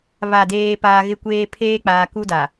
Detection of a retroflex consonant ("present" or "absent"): absent